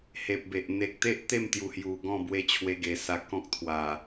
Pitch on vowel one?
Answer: low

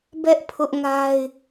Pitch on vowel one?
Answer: high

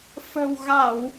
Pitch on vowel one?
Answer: low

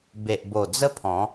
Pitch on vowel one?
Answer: low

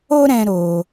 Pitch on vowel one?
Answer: high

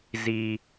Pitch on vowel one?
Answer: low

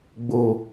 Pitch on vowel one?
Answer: low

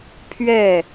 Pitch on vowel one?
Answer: falling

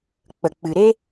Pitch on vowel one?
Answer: low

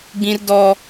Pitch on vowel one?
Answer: high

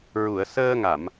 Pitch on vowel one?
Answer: low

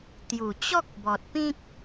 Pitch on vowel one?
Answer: low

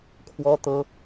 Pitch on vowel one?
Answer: high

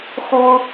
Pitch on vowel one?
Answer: high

